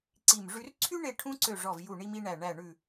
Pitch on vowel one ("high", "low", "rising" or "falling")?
falling